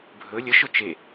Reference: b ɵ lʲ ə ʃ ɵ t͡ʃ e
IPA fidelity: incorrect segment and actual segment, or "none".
b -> bʱ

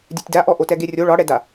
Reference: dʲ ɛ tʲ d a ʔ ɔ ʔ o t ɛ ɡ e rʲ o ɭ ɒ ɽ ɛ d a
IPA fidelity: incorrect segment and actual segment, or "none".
none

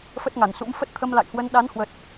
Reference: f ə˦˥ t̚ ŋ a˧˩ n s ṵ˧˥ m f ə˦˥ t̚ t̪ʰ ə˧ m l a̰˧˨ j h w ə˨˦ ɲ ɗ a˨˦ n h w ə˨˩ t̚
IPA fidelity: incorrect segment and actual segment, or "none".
ɲ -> n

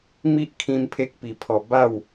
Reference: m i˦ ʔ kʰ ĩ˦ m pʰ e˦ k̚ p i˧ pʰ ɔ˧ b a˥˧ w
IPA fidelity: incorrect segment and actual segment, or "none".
none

